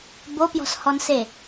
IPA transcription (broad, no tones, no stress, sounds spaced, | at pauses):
b o p j ɔ̤ s h ɔ n s e